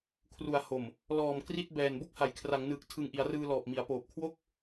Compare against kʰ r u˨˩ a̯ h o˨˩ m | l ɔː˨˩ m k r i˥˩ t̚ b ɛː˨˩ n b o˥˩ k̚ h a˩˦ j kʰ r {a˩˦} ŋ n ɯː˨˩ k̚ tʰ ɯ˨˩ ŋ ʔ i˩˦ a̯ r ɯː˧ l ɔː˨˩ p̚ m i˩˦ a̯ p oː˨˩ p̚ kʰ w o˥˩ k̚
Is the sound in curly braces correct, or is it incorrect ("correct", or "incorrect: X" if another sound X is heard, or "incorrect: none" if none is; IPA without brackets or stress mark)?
correct